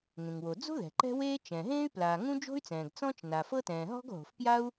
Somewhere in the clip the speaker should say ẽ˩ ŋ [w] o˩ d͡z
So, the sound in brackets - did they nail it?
yes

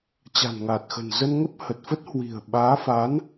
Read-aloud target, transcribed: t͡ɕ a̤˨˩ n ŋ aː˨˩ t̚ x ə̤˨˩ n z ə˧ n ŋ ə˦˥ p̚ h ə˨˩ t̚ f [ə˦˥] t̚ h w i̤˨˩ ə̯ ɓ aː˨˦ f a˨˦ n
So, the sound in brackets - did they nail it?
yes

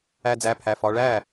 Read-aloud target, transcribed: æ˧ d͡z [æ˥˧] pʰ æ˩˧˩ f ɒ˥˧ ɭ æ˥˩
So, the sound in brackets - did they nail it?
no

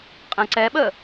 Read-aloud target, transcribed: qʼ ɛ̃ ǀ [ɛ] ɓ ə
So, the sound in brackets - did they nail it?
yes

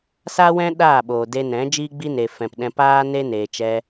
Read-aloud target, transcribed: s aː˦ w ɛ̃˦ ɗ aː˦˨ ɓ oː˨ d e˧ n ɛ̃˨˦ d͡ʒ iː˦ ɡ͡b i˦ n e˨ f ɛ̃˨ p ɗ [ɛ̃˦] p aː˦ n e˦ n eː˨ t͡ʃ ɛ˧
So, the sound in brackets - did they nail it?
no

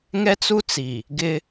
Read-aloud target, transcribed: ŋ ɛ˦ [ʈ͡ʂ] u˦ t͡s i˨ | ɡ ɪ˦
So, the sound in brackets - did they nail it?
no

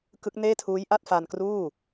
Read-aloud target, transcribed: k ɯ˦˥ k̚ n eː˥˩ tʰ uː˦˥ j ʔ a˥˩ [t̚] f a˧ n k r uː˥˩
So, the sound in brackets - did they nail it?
yes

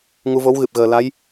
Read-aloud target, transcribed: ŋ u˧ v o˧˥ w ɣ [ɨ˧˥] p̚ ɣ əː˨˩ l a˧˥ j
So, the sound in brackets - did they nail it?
no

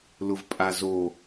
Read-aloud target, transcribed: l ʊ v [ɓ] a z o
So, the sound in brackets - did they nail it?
no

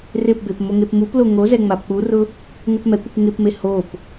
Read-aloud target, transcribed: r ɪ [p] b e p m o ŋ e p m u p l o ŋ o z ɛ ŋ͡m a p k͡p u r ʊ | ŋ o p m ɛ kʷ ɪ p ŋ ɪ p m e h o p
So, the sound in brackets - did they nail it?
yes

